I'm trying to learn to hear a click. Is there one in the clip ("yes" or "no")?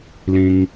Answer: no